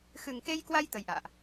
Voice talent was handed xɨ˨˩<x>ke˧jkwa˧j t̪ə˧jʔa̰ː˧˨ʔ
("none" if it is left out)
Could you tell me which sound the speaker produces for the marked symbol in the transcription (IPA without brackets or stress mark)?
ŋ